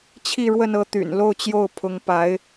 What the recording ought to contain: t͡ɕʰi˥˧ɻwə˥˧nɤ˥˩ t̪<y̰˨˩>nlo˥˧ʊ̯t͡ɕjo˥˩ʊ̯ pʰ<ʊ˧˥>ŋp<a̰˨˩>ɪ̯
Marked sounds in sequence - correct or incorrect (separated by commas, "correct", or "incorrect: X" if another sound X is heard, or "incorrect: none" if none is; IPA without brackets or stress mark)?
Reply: correct, correct, incorrect: a˧˥